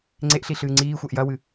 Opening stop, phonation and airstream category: click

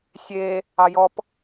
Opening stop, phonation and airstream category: plain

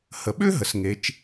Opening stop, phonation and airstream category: implosive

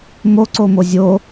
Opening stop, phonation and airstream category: click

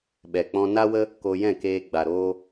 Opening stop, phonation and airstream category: implosive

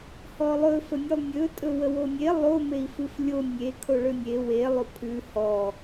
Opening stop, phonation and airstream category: ejective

